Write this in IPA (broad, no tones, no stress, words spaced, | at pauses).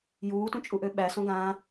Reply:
juːtũ t͡ʃʼuʔøɓæ sõɡãː